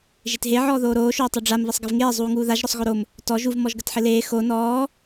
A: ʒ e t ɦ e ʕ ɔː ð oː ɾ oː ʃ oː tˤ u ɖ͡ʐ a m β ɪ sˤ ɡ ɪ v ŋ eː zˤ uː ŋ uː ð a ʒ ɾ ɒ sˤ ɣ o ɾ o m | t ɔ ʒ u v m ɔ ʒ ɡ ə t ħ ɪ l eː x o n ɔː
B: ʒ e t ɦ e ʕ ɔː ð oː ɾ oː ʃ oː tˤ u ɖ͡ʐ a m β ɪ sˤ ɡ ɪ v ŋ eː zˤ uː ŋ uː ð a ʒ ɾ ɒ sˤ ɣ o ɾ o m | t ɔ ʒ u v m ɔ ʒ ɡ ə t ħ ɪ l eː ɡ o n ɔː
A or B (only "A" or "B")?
A